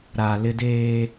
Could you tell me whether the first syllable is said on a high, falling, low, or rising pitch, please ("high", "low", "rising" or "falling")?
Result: low